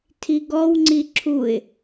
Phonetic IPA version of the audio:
tʰ i ɡ ɔ w ŋ͡ǀ i ǁʰ u ɪ̯

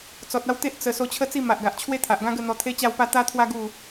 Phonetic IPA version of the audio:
t͡s ɔ˨ t̚ a˥˧ w t̪ e˦ ʔ t͡s ə˧ s o˧ t͡ɕʰ ə˥˧ t͡s i˥˧ m a˨ ʔ ɡ a˨ ʔ t͡ɕʰ w e˦ t̪ʰ a˨ ʔ ɡ ã˦ ɡ ə˥˧ n̪ ɔ˧ t̪ʰ e˦ t͡ɕ a˥˧ w p a˥˧ t̪ a˦ t̪ʰ w a˦ ɡ u˥˧

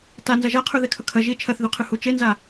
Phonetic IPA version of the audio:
t a n z ɐ ʒ a qʰ ʉ ð e kʰ ɵ kʰ ɐ ʒ i t͡ʃʰ ɐ θ ð ʉ qʰ ɨ h u t͡ʃ e n z a

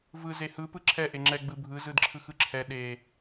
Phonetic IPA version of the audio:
v ɯ z e h ɯ p ɯ ǁʰ ɛ ʔ e ŋ͡ǁ ɛ ɡ͡b ɯ bʱ ɯ z ɯ d ǁʰ ɯ x ɯ ǁʰ ɛ ɗ e

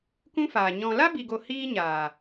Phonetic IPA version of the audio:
k ũ˦ f aː˨ ɲ ɔ̃˨ l a˦ b i˨ ɡ o˨ h iː˦ ɲ aː˨

